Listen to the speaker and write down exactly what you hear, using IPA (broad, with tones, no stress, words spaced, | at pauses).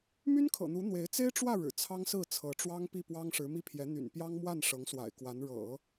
my˥nkʰɤ̰˨˩n̪u˧˥ n̪we˧˥ɪ̯ t͡se˥ɪ̯ʈ͡ʂwä˥˩ ɻɻ̩˨˩t͡sʰɑ˥ŋsɹ̩˥˩ t͡sʰɤ˧˥ʈ͡ʂwɑ˥ŋ pi˥˩pwɑ˥ŋ ʂɻ̩˧˥mi˥˩pʰjɛ˧˥n̪y̰˨˩n pjɑ˥ŋmwa˥˩n ʂɤ˧˥ŋswa̰˨˩ɪ̯kwa˧˥n ɻɤ̰˨˩˦